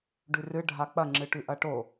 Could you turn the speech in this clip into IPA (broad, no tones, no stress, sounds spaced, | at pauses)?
ɖ ʉ r ɨ ɖʱ a k͡p ɐ ŋ͡ǁ ɨ ʈ ʉ ʔ ɐ ʈ o